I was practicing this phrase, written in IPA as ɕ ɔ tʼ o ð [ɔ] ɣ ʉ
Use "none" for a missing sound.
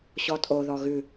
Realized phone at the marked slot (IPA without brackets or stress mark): ɔ